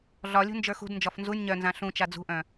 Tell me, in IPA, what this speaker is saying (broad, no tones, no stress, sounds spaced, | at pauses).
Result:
ɮ ɒ lʲ ṳ n d͡ʒ ə˞ x ṳ d n d͡ʒ ɒ f n z u nʲ ɲ œ n z ã ɬ ũ t͡ʃ a d͡z ṳ ʔ œ̃